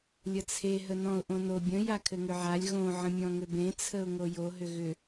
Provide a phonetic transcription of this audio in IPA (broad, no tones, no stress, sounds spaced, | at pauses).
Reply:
lʲ ə t͡sʰ e ɦ ə n ɔ̃ ʊ̯ ʔ õ n o bʲ ə̃ j a kʰ ɘ ŋ ʏ ʕ a lʲ ɣ õ ʕ ə̃ mʲ ɔ̃ ŋ ʏ b ẽ t͡sʰ ə ʊ̯ ŋ o j o ɦ ʏ ɣ ʏ